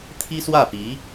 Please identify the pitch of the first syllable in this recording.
high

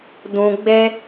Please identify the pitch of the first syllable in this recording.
low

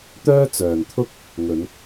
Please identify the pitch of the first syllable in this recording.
high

